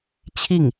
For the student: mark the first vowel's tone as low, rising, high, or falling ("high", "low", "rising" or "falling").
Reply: falling